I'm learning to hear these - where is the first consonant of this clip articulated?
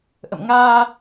throat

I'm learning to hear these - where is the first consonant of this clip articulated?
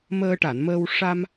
lips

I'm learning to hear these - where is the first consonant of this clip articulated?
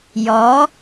palate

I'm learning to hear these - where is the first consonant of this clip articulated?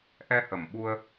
throat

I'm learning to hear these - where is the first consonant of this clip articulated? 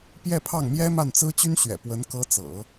lips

